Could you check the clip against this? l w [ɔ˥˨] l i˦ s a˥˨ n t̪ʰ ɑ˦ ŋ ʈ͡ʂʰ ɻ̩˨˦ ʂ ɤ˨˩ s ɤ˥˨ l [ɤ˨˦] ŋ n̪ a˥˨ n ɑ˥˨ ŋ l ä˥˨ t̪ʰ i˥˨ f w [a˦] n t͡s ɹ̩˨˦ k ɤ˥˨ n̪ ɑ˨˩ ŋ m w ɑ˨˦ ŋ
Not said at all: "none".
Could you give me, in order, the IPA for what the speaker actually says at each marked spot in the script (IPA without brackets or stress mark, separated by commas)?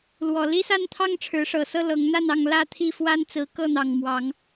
ɔ˨˩, ɤ˨˦, a˦